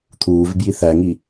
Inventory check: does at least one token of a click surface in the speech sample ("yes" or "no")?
no